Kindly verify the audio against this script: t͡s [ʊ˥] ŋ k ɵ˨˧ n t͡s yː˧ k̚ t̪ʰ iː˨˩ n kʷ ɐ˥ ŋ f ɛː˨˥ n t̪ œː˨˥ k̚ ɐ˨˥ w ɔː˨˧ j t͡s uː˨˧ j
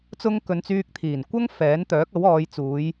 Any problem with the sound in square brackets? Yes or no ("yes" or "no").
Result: no